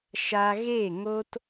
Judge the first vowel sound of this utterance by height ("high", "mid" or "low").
low